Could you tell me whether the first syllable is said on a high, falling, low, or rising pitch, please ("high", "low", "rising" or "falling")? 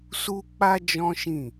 high